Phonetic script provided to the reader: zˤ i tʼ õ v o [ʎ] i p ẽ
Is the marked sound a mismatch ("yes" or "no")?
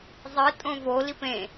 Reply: yes